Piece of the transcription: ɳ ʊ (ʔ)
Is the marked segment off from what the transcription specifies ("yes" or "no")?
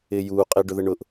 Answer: no